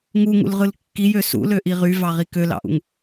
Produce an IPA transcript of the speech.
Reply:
ŋuŋṵlʁɯl kːijø sṵløʔi ʁyvɑʁi kølɑ̰ʔṵŋ

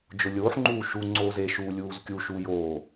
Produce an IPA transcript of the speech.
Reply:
d͡ʒʊlʲoːħŋ͡ǃuː ʃuŋ͡ǀoːz eʃuː lʲuːzkʲuʃuː joː

